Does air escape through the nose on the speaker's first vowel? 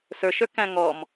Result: no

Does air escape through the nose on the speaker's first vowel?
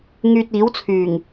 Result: no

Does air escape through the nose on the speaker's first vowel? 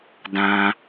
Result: yes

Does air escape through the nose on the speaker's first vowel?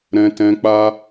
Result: yes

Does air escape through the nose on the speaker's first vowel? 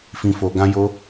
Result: yes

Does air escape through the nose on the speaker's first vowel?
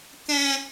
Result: yes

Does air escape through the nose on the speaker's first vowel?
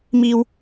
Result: no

